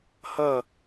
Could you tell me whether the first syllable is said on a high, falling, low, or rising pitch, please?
falling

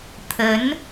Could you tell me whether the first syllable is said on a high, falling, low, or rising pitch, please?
rising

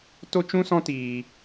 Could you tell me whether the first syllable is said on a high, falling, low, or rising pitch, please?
high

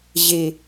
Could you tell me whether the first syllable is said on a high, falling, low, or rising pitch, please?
low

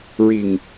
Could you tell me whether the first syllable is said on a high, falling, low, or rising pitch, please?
low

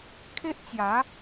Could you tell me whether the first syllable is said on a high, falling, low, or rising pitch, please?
high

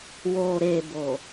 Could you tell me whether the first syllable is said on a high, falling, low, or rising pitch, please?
low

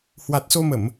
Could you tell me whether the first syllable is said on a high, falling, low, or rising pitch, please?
low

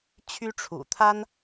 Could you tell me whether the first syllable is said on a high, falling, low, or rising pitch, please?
high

